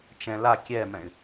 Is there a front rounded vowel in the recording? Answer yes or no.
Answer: yes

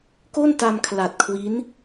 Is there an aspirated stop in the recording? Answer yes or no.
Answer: yes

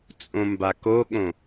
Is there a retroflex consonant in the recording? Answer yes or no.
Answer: no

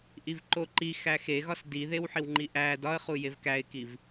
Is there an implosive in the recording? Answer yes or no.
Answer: no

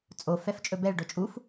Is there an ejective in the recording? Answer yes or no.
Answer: yes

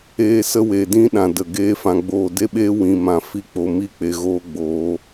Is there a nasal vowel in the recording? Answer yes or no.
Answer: yes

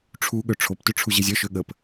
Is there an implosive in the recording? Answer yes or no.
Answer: yes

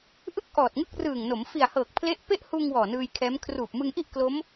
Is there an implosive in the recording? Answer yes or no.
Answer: no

